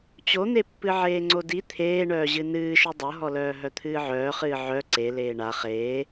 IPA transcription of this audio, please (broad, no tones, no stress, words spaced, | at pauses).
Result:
t͡ɕon̪epːɨ ʕeːŋ͡ǀodi t̪ʰeː ɳœːʑɨnɨːʃɯ dˤɤɦɔlœː ɦœt̪ʰɨːʕœːχɨː ʕœ ǀe leːɳa χeː